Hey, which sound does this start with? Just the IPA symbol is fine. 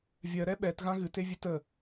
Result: vʲ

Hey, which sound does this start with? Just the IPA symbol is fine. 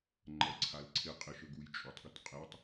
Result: ŋ͡ǃ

